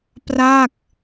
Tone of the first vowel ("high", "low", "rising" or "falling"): falling